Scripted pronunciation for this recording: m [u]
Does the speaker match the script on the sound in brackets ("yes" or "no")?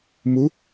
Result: yes